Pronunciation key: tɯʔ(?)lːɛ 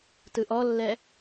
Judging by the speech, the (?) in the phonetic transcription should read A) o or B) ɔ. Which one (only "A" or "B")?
B